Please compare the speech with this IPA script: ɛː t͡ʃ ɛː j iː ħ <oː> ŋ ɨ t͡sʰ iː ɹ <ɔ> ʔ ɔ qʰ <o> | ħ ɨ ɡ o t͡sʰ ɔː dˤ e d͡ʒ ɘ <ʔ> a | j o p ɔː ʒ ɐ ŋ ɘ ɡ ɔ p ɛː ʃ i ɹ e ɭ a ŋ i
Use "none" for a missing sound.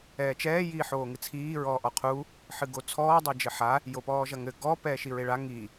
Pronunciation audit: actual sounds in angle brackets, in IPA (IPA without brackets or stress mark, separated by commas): oː, ɔː, u, ħ